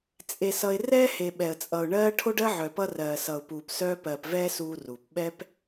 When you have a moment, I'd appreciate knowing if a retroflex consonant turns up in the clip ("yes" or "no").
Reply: yes